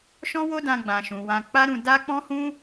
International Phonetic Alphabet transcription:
ʃ ɔ̃˦ w o˦ d ã˧ ɡ͡b ã˨ ʃ ũ˨ w ã˧ k͡p a˦ ɾ ũ˧ d a˦ k͡p ɔ̃˦ h ũ˦

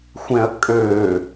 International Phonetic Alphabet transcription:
xʷ ɛ̃ ɐ̯ kʼ øː

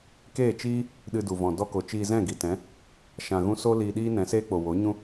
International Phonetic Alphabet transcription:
k eː˦˨ t͡ʃ iː˦ | ɗ ɨ˧ d u˨ v ɔ̃˨ d ɔ˧ k o˨ t͡ʃ iː˧ z ɛ̃˦˨ ɡ i˨ t ɛ̃˨˦ | ʃ ã˨ ɣ ũ˧ s o˦ l iː˧ ɗ iː˦ n ɛ̃˨˦ s eː˦ k͡p o˨ w o˨˦ ɲ ũ˦

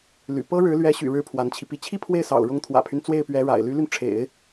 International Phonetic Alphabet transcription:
l y̰˨˩ p ɤ˥ ɻ ɻ̩˧˥ l ɥ ɛ˧˥ ɕ y̰˨˩ ɻ ɻ̩˧˥ pʰ w a˧˥ n t͡ɕʰ i˧ p i˥˩ t͡ɕʰ i˥ pʰ w e˥˩ ɪ̯ s ɑ̰˨˩ ʊ̯ ɻ ʊ˧˥ ŋ t̪ʰ w ä̰˨˩ pʰ y˦ n t͡s w e˥˩ ɪ̯ p ɥ ɛ˧˥ ɻ a̰˨˩ ɪ̯ l y˧˥ l y˧ n ʈ͡ʂʰ ḛ˨˩˦ ɪ̯

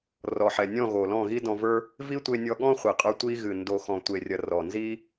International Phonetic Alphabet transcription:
r ɔ˨ ħ ɛ˨ nʲ ɔ̃˦˨ ɣ o˨ l ɔ̃˦˨ ɣ i˦ d ɔ̃˧ v ə˞˦ | v i˦ tʷ e˧ nʲ ɔ˧ ɠ ɔ̃˦ χʷ i˨ qʼ ə˞˧ tʷ i˧ ɣ ɨ˨ n d o˨ x ɔ̃˨ tʷ e˨ rʲ ɐ˨ r ɔ˨ n z i˦

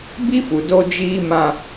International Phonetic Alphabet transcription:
b i˦ f u˨ d o˦ d͡ʒ iː˦ m ã˦

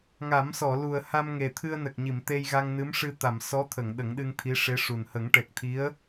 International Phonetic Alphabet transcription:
ŋ a˨˩˦ m s ɔ˨˩˨ l u˨˩ ə̯ h a˧ m ŋ e˨˩ t̪ʰ ɨ˧ ə̯ n ə˨˩ k̚ ɲ i˨˩˨ m t̪ e˧ j ɣ a˧ ŋ n ɨ˧˥ m ʂ ɨ˧ t̪ a˨˩˨ m s ɔ˧˥ t̪ʰ ə˨˩˨ ŋ ɗ ə˨˩˦ ŋ ɗ ɨ˧ ŋ t̪ʰ i˧˥ ʂ e˧˥ ʂ u˨˩ n h ə˨˩˦ ŋ ʈ ɛ˨˩ k̚ t̪ʰ i˧˥ ə̯

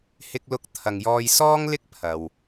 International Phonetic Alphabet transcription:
h ɪ˧ k̚ l ʊ˧ k̚ t̪ʰ ɐ˨ ŋ j ɔː˧ j s ɔː˥ ŋ l ɪ˥ k̚ pʰ ɐ˨ w

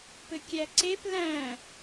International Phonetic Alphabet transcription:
p ɘ kʲ æ ǀ e p l æ̃

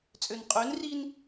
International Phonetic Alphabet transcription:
t͡sʼ ø n qʼ ø n r i n

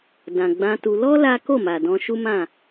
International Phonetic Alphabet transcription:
d ã˨ ɡ͡b ã˧ t u˧ l ɔ˦ l a˦ k o˦˨ m a˨ d ɔ̃˧ ʃ u˦ m ã˦˨

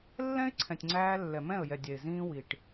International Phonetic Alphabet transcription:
lː ɛ̃˦ ɪ̯ ǀʰ ɛ̃˨ tʲ ŋ͡ǀ æː˧ lː ɛ˨ m ɛ̃˦˨ ə̯ j ɛ˨ dʲ ɛ˨ ɪ̯ z ĩː˦ w i˨ ʈ

